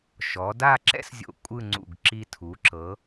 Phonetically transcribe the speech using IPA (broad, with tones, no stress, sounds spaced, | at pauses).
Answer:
ʃ ɔ˩˧ d a˥˧ ǁ ɛ̰˥ s zʲ o̰˧˩ kʷʼ ɯ˥˧ ŋ͡ǀ ṵ˧˩ ɡ ǁ i˧ tʰ u˩˧ ǁ ɤ˩˧